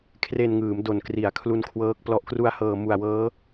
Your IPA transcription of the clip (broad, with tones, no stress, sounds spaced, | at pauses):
kʰ r e˧ n ŋ ɯː˩˦ m d o˨˩ n k r i˩˦ a̯ kʰ l u˦˥ n kʰ w ɤː˦˥ k̚ p l ɔ˨˩ ʔ k r u˧ a̯ h ɤː˨˩ m u˨˩ a̯ w ɤː˦˥